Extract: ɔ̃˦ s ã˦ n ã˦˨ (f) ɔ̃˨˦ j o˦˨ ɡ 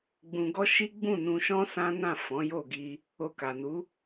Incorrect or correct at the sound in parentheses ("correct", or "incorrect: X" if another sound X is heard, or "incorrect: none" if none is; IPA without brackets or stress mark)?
correct